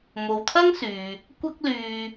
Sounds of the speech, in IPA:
m o˨ w t̪ʰ ɐ˥ ŋ s yː˨ | kʷ ɐ˥ k̚ l yː˧

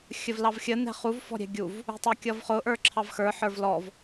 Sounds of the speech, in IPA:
xʲ ə v l ɑ v xʲ ə n ɛ̤ χ u v f ɔ̤ ɾʲ ɛ̤ ɡʲ u v | ṳ tˤ ʌ kʲ ʌ v χ ʊ ʔ ə˞ ǁʰ ɑ v x ə˞ ħ ə˞ v l ɔ v

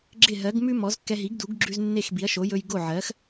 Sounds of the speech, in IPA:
ɡ͡ǁ ɪ˥˩ ɦ ɜ˩˥ ɡ m ʉ˥ m ɔ˩˥ z kː ɛ˧ ɦ i˩˥ ɡ d u˩˥ ɡ ɡ͡ǁ ʉ˧ z nː e˥˩ x b i˩˥ ɐ̯ ʃ o˩˥ j ɵ˧ j ɡ o˥˩ ʕ ɜ˩˥ x

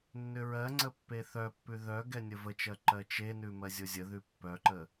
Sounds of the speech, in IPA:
nː ʏ ɹ ɜ ŋ͡ǀ ə pː e θ œ pː ʉ ð œ ɡ ɛ nʲ ə v ə t͡ʃ ɜ ǃ ɜ t͡ʃ e n ʉ m ɜ zʲ o zʲ ə ð ʉ pː œ ǃ ə

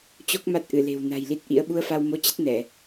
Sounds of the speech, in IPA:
t͡ɕ o˦˥ k̚ m a˦˥ t̚ ʔ ɨ˧˩ l e̤˨˩ w n a̤˨˩ j l i˦˥ t̚ ʔ ḭ˧˥ ə̯ ɓ u˧ ə̯ f a˧ w m o˧ t͡ɕ ə˦˥ t̚ n ɛ˧˩˨

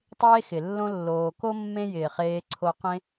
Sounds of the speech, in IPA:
tˤ eː˦ x ɪ˩ lː õ˦ lː oː˨ k o˥ mː ẽ˦ j ɪː˩ χ eː˨ ǀʰ o˨ q ẽ˦

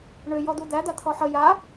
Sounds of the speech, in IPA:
ɳ ʏ j ɔ d̪ u d̪ æ d̪ a t̪ʰ ɔ ħ ə j a

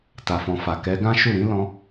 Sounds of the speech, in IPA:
t a˨ f ɔ̃˨ f a˨ k ɛ˨˦ ɡ ã˦ ʃ u˦˨ ɾ ĩ˨˦ l ɔ̃˧

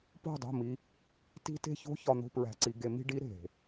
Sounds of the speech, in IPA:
p o̤˦˨ dˤ o̤˦˨ m i˧ | t i̤˦ t e̤˦ ç o̤˦ ç ɒ˧ n̪ o̤˧ p ɹ æ̤˨ ǀ i˨ ɡ e˧ m i̤˧ ɖ i˨˦ ɾ e̤˨

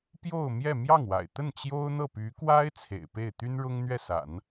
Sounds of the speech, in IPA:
p j o˥˧ ʊ̯ m j ɛ˥˧ m j ɑ˥˩ ŋ w a̰˨˩ ɪ̯ t̪ ə˥˩ n t͡ɕ j o˥ ʊ̯ n̪ ɤ˥˩ p y˧˥ k w a˥ ɪ̯ t͡sʰ ḛ˨˩ ɪ̯ p e˥˩ ɪ̯ t̪ y˥ n ɻ ʊ˥ ŋ n̪ ɥ ɛ˥˩ s a̰˨˩˦ n

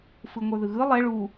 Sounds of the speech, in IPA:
f ɯ ŋʷ ə˞ ð ɯ ɣ ɯ lˠ ɛ ɭ u

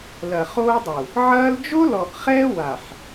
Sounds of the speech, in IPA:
l ɐ˨ χ oː˦ dˤ u˨ | ʕ ɐː˦ l d͡ʒ o˦ l ɔ˨ ʔ χ ɛː˦ w a˨ ħ

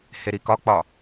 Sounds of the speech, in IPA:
h e ɾ i k ɒ k͡p ɒ

